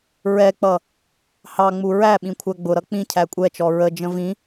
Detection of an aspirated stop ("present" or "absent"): present